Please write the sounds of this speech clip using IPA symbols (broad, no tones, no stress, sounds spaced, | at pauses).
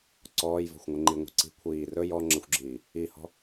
ǀ ɔː j v ɔ̤ xʷ ŋʷ ɘ ŋ͡ǃ i ŋʷ i̤ ǀ i̤ kʷʰ iː r ɵ j ɔ ŋ͡ǁ ɘ xʷ ɡ͡ǁ iː | i h ɔ̤